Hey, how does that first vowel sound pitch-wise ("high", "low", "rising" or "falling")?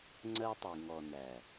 high